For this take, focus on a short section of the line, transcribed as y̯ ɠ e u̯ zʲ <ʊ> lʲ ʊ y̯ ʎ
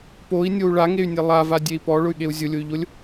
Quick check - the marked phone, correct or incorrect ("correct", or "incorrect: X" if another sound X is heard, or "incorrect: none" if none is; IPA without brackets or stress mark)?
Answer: correct